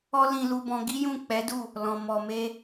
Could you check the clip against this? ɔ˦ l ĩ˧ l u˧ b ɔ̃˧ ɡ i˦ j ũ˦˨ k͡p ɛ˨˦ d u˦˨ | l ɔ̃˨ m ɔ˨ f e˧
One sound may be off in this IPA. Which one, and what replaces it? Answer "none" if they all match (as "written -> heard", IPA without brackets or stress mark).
f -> m